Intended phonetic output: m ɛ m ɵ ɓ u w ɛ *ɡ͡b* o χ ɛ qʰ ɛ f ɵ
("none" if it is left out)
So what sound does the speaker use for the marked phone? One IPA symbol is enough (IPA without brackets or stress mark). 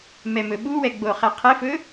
ɡ͡b